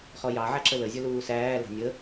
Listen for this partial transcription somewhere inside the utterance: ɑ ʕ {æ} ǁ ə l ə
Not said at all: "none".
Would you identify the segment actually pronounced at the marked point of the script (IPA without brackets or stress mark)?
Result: æ